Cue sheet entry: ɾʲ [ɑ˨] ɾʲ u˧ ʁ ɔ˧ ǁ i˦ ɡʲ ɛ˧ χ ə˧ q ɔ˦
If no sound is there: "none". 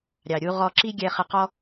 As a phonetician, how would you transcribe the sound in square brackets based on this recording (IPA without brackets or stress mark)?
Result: ɑ˨